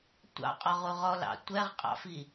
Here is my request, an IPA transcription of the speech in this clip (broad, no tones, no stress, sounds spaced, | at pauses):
tʷ ɑ̰ qʼ ɔ ʁ u ʁ ɔ l ɑ̰ tʷ ɛ ʁ qʼ ɑ̰ f i